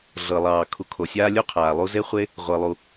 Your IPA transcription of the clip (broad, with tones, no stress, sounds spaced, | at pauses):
ɮ ɤ˩ lˠ ɑː˩ kʰ u˨ kʰ o˩ sʲ aː˥ lʲ o˥ qʰ aː˩ lˠ u˦ z e˥ χʷ e˥ | ʁʷ ɤ˩ lˠ u˩